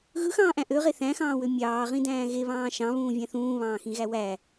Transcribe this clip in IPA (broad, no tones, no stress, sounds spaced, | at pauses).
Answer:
ɣ ɯ x ɑ̃ː ʔ æ̃ ʔ ø ʁ e θ æ̃ x ɑ̃ː w ø mʲ ɑː ʁ ĩ d æ̃ː ɣ e β ɑ̃ː ʃ ɑ̃ β ũː vʲ æ̃ θ ũː β ɑ̃ː x ĩ ɣ æ w æ